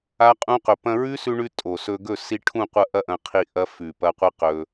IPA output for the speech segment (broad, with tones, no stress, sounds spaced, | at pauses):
a˦ qʼ ũ˦ q ɵ˧ p ɐ̃˧ ɹ ʉ˦ s ʉ˧ ɳ ʉ˧ tʼ o˨ s ɵ˧ ɡ ɵ˦˨ s i˧ ʈʰ ũ˦˨ qʷ ɐ˦˨ ʔ ɐ˦ ʔ ɐ̃˧ qʰ i˧ ʔ ɐ˦ f ʉ˨ p ɐ˧ qʷ i˦ q ɵ˧